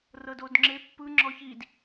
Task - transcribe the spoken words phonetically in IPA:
r ɤ d o d ŋ͡ǁ e pː ɯ ŋ͡ǁ ɔ ç i d

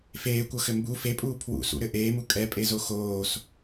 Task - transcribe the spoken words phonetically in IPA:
f eː kʷ ɤ x ɘ m b u f e pʼ uː pʰ w ṵ s ṵ ɾ ɘ ʔ eː m u kʼ ɛ pʼ e z o x oː s

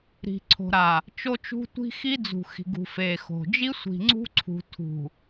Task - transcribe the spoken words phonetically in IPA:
ɾ i̤˨ ǀʰ o̤˨ ɾ a˨ | t͡ʃ o˦ t͡ʃ ṳ˦ tʷ i̤˦ x i˦ d͡z ṳ˨ x i̤˨ ɡ ṳ˨ f e˨ x o̤˨ d͡ʒ i˦ sʷ i̤˨ ŋ͡ǀ ṳ˦ ǀʰ ṳ˨ tʰ ṳ˨

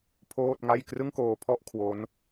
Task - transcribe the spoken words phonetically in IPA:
pʰ oː˥˩ t̚ ŋ a˥˩ j k r ɯ˥˩ ŋ k oː˧ pʰ ɔ˥˩ ʔ kʰ w o˦˥ n

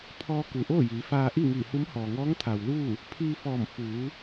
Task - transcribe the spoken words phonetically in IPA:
pʰ ɔː˧ k u˩ ʔ oː˥˨ j iː˩˧ f aː˧ ʔ i˥˨ ŋ iː˧˩ h u˧˥ m h ɔː˩ ŋ ɔː˧˥ ŋ t̪ʰ a˩ w l uː˥˨ | pʰ iː˧ f ɔː˧˩ m f uː˩˧

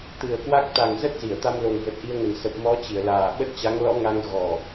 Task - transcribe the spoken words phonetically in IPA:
t̪ ɨ˨˩ ə̯ k w a˦˥ k̚ t̪ a˨˩ ŋ z ə˦˥ t̚ z i˧˩ ə̯ t̪ a˧ m l o˨˩ ŋ v ə˨˩ t̚ ʔ i˧ ə̯ ŋ ə˨˩ n s ə˨˩ p̚ m ɔ˨˦ t͡ɕ i˧˩ ə̯ l aː˨˩ ɓ ə˦˥ t̚ t͡ɕ a˨˦ ŋ l ɔ̰˧˥ ŋ a˧ ŋ ɣ ɔ˨˩

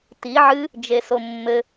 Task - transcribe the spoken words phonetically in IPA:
t i ʕ ɨ | d͡ʒ e s o mː ɘ

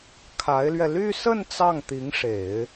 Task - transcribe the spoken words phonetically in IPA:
kʰ a˧˥ ɪ̯ l ɥ ɛ˧ l y˥˧ s ə˥˧ n t͡s ɑ˥˩ ŋ t̪ i˧˥ ŋ ʂ e˨˩˦ ɪ̯

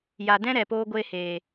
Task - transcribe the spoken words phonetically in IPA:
j a˨ d ɛ̃˦ ɾ ɛ˨ p oː˦ ɡʷ eː˦ h eː˨

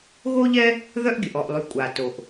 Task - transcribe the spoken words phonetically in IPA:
ɣ o˥ ʎ ɛ˥ | ð œ˥ ʔ ɡʲ ə˩ ʔ ɔ˩ ʔ lˠ y˩ kʷʼ a˩ t o˩ ʔ

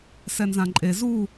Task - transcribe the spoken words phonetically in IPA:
s ɛ n z ã ǃʼ e z u

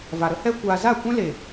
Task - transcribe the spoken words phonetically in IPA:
v a˨ ɾ ə˦ h ɛ˦ kʷ aː˧ z a˦˨ kʷ ɛ̃˦ l e˨

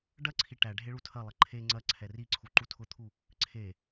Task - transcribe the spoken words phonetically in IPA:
ɖ ɐ ǀʰ i ʈ æ ɖʱ e ɭ u tʰ ɐ lˠ ɐ ǃʰ e ŋ͡ǀ ɐ ǀʰ ɛ r i ǀʰ u ǃ u tʰ ʊ t̪ʰ u | ǀʰ e

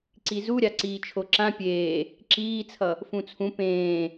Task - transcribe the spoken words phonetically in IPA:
ǀ i z u ɾʲ a ǀ iː t͡ʃʰ o ǁ ã pʲ eː | ǁ iː t͡sʰ ʌ | f ũ t͡sʰ ũ p ẽː

